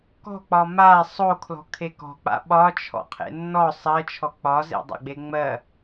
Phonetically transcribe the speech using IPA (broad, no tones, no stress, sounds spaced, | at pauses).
k ɔ̤ k͡p ɒ m a sˤ o kʰ l ɔ̤ kʰ e k ɔ̤ k͡p a̰ ɓ ɒ t͡ʃʰ ɔ̰ qʰ ḛ nː ɔ sˤ ɜ t͡ʃʰ ɔ k͡p ɒ z ḛ dˤ a̰ ɡ͡b e ŋ͡m ɜ